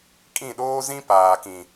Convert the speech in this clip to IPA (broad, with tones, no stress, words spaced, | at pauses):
kʼĩ˦˨ɗoː˦zĩ˦ paː˨kĩ˨